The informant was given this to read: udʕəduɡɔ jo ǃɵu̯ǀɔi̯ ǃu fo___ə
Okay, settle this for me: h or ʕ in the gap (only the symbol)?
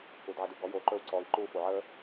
ʕ